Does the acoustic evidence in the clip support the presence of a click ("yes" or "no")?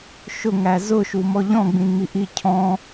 no